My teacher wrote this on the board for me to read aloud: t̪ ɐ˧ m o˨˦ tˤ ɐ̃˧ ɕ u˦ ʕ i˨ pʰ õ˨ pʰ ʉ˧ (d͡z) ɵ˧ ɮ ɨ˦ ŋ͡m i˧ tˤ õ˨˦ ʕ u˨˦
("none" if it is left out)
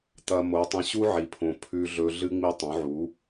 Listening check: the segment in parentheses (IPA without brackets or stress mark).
ɮ